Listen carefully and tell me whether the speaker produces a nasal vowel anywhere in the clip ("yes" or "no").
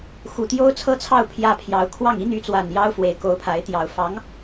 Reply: no